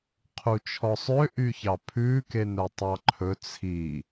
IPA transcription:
qʰ u t͡ʃʰ ɔ sˤ ø ʔ y ç ɑ pʰ ʉ k e n œ tˤ ɑ ǃʰ ɵ t͡sʰ i

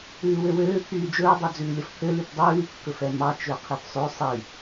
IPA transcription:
ʉː w ø w øː pʰ yː d͡ʒ ɵː dˤ œ d͡z ʉː lʲ ɔ f pʰ ø l y p dˤ ʉː kː ɵ f ɛ m ɑ t͡ʃ ø qʰ i p sˤ ø sˤ i

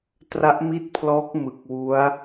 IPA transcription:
t r a˦˥ ʔ m i˥˩ t̚ pʰ l ɔː˦˥ k̚ m ɯ˨˩ k̚ w u˦˥ a̯

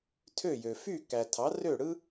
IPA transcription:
tʰ ø˥˩ j ø˩ f y˥˩ k æ˩ tʰ ɑ˩˥ r ø˥˩ ɽ ɯ˥

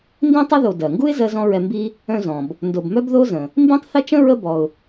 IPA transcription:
n d ĩ˥ tˤ ə˥ ð o˨ d ɜ˩ ŋ ɡ u˥ ɪ̯ z ɜ˥ z ɔ̃˥ ɹ ɛ˦ m b i˦ | œ̃˦ z ɔ̃˩ b | n d o˨ b m œ˥ b ð o˥ z ə̃˩ | m b ĩ˥ tˤ θ ə˥ t͡ʃ ə̃˥ ɹ ə˦ b ɔ˨ ʊ̯

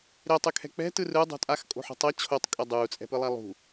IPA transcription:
ɾ e tˤ ɯ kʰ ɛ̤ k͡p ɛ̤ t ɯ r ɯ dˤ o̤ tʼ a x kʼ o̤ ħ o̤ tˤ ʌ t͡ɕʰ o tˤ kʼ ɛ dˤ uː t͡sʼ ɛ̤ p ɯ lˠ a lˠ ṳ

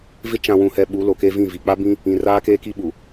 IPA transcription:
v ɪ˦ t͡ʃ ã˨ w ũ˨ h ɛ˨ ɓ u˨˦ l o˨ k e˦ v ĩ˦˨ v i˨ k͡p a˦ b ĩ˦ | ĩ˨ r aː˦ k eː˦ k i˦ ɓ u˨

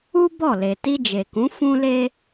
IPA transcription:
u˦ b ɔ˦˨ l e˨ t i˧ d͡ʒ e˨ k ũ˨˦ f ũ˦ l e˦

